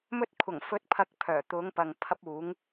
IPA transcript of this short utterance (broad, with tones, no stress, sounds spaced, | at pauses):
m ɵ˧ t̚ kʷʰ ɐ˨˩ ŋ f ɵ˨˥ t̚ pʰ ɐ˨ k̚ pʰ œː˨˩ t̪ ʊ˨˧ ŋ p ɐ˨ ŋ pʰ ɐ˧ p̚ uː˨˧ ŋ